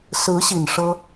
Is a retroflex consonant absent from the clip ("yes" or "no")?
no